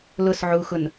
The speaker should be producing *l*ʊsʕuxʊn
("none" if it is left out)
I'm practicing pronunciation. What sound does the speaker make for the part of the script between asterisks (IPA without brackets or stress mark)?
l